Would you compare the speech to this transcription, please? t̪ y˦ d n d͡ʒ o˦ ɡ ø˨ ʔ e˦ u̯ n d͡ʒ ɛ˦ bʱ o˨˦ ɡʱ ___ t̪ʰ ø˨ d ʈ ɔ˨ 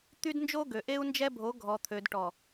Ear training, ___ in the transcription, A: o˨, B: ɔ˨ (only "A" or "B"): B